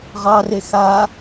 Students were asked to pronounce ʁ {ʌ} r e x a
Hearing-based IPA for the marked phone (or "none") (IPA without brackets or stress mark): ɑ